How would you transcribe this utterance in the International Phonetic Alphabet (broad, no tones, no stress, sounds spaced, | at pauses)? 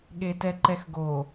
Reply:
ɠ e t ɛ ǃ ɛ x ɡ o